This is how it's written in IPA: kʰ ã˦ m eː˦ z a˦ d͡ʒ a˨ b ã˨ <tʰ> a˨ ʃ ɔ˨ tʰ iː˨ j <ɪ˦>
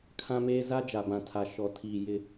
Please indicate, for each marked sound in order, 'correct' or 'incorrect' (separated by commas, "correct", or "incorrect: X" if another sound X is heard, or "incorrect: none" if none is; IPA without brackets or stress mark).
correct, correct